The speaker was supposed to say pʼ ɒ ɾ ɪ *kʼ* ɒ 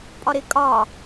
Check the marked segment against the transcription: correct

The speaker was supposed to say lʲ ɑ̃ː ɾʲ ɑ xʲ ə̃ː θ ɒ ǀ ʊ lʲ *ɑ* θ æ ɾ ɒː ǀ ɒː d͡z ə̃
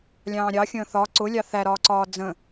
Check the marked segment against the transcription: correct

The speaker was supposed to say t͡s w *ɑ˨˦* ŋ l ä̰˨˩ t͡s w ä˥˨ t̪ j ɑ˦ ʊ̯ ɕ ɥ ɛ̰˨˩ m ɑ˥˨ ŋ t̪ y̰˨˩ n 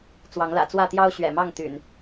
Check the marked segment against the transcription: correct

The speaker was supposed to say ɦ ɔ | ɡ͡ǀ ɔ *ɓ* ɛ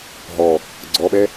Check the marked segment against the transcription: correct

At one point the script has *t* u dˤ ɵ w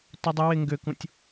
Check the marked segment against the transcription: correct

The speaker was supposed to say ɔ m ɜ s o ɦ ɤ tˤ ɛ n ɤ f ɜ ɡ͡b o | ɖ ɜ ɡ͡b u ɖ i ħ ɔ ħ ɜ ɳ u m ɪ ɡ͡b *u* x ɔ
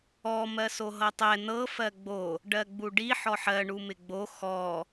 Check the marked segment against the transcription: incorrect: o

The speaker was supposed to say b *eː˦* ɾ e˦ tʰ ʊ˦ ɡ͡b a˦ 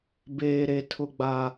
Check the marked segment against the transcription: correct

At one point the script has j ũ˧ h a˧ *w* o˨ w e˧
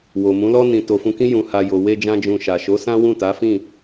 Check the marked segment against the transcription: incorrect: j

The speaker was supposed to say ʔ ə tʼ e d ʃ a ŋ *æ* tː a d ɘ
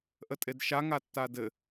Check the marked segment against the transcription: incorrect: a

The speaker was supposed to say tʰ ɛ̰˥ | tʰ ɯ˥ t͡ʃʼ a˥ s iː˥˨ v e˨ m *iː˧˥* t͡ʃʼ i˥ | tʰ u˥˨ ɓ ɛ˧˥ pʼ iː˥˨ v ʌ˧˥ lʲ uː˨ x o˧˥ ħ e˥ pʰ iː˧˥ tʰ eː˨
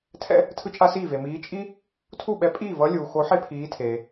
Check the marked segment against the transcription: correct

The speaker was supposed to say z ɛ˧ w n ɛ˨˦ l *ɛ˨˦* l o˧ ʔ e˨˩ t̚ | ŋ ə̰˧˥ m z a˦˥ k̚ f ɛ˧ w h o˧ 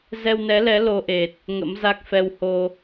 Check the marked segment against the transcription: correct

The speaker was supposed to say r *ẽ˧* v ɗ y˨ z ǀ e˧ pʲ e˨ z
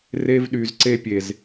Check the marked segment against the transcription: incorrect: e˧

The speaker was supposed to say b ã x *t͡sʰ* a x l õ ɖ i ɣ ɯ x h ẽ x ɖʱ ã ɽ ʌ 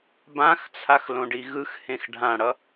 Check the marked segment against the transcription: correct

